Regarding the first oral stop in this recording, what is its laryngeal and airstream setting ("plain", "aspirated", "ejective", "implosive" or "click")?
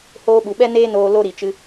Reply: implosive